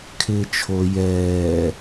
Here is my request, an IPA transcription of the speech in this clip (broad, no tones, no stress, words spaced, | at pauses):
kʰɪːt͡ʃʰo jɛː